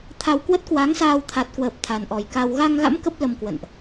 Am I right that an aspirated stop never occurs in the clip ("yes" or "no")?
no